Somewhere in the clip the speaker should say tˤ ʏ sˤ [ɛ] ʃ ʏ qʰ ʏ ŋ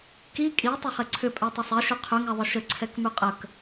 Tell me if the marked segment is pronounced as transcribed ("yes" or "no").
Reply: yes